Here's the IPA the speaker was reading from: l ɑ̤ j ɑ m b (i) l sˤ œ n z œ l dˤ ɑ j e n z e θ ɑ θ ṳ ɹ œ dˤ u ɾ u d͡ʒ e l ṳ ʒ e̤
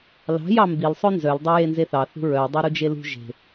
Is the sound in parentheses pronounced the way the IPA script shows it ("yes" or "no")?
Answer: yes